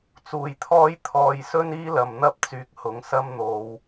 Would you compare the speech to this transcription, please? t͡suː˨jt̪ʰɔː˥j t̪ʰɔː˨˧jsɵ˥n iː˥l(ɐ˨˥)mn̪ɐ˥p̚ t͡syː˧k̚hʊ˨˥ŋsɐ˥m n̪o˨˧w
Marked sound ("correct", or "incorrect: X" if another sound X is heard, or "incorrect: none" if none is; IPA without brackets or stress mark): incorrect: ɐ˨